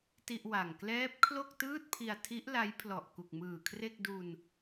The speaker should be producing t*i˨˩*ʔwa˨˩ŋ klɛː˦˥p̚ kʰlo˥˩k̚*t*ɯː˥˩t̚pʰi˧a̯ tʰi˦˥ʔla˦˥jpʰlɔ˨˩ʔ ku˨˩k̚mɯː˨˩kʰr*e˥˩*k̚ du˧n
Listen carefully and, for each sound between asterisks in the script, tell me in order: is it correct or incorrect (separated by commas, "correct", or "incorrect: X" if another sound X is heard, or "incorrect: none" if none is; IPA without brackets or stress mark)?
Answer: incorrect: i˥˩, correct, correct